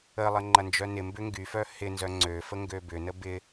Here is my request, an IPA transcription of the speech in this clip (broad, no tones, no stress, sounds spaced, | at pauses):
ə lˠ ə ŋ͡ǃ ɐ n d͡ʒ œ n ɪ m b ʏ ŋ ɡ y f œ h ɪ n z œ ŋ͡ǀ ø f ə ŋ ɡ ø b ʏ n ə b ɪ